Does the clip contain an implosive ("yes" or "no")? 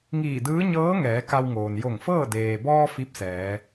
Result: no